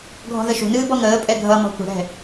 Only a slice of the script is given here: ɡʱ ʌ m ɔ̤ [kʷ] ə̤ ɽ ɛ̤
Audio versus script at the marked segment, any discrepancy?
no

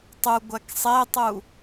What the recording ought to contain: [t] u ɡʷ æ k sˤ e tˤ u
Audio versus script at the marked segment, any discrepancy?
yes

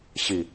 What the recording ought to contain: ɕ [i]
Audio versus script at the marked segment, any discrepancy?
no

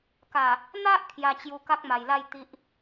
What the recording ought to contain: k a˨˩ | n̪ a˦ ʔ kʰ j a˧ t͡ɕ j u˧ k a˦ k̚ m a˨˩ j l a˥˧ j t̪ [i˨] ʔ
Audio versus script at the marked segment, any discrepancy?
yes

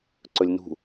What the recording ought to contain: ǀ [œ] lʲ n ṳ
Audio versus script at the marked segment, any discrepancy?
yes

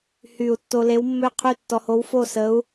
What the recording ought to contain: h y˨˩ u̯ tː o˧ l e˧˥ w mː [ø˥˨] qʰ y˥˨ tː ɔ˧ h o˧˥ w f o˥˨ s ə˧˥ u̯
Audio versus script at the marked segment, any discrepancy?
no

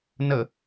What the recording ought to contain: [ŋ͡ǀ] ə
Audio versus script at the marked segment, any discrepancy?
yes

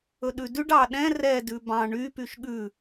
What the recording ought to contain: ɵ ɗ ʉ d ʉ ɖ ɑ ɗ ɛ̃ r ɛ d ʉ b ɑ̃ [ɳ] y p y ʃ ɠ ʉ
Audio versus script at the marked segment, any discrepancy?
no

